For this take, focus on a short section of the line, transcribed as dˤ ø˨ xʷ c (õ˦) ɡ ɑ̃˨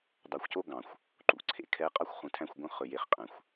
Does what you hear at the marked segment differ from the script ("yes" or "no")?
yes